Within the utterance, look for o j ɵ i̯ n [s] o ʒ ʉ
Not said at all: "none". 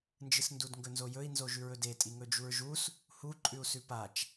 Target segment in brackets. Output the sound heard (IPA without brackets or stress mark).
z